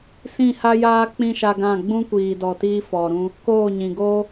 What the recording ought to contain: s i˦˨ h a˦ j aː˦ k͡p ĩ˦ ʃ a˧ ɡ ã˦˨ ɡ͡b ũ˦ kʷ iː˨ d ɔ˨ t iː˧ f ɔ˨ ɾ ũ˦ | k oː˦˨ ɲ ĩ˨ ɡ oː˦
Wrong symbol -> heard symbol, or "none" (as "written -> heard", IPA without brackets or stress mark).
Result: i˦˨ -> ĩ˦˨